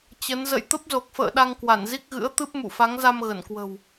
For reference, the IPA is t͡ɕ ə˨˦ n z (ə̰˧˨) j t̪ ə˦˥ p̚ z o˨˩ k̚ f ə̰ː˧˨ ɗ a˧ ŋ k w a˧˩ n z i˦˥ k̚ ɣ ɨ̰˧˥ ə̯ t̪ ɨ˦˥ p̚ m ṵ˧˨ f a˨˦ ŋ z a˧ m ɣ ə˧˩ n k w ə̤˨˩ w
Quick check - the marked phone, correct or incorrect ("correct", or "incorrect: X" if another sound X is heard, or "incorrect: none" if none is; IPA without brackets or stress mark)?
correct